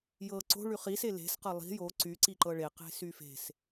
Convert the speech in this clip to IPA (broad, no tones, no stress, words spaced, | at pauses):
jɤ ǀo̤ ɭyχis ele̤s qɤlˠi̤ jo ǀy ǀiǃɤɭe qe̤syfe̤s